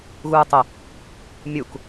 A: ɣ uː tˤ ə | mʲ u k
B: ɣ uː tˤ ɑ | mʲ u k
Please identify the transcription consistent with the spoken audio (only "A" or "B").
A